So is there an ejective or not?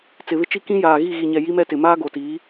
no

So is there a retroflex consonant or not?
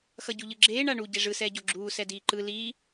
yes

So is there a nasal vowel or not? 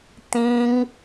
yes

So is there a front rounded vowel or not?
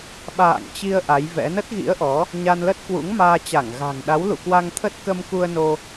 no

